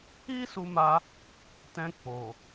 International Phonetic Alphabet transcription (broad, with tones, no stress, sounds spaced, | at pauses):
i˦ s u˧ m a˧ | t ɛ̃˧ k͡p o˨